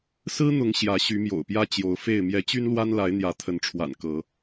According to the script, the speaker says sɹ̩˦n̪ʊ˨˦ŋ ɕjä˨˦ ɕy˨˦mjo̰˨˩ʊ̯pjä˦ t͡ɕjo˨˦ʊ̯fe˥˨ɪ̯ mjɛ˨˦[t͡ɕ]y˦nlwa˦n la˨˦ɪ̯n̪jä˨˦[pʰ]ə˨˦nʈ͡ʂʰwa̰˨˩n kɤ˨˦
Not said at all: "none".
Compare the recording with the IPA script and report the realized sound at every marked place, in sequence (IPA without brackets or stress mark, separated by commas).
t͡ɕ, t̪ʰ